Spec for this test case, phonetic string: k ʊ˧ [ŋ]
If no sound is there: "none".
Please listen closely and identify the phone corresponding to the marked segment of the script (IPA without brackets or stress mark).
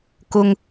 ŋ